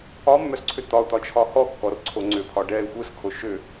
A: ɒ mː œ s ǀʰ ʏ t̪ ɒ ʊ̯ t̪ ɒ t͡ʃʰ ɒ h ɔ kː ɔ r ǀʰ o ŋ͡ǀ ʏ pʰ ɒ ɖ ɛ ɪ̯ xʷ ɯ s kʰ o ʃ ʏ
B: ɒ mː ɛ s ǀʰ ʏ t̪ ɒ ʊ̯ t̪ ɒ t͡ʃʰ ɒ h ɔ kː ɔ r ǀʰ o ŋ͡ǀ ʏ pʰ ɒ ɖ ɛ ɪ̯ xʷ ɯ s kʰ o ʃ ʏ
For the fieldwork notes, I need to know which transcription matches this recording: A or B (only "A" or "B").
A